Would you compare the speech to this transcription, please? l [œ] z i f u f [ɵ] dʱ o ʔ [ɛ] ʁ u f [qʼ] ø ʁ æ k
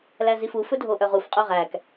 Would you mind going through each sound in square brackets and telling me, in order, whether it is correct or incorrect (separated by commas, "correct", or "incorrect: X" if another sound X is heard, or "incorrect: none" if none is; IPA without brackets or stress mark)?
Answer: incorrect: æ, correct, incorrect: œ, correct